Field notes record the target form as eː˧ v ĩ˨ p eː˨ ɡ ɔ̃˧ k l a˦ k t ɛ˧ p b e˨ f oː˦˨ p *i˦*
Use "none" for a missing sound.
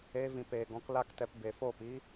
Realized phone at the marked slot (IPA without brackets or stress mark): i˦